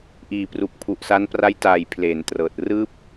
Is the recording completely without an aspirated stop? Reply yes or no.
no